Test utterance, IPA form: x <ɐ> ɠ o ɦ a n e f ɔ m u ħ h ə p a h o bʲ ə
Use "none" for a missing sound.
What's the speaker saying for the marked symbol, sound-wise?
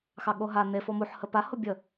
ɑ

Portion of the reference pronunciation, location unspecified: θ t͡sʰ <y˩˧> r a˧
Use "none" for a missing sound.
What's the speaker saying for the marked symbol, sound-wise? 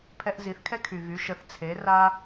e˩˧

